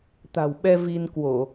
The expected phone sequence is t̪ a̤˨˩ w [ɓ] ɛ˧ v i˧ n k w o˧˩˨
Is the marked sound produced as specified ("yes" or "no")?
yes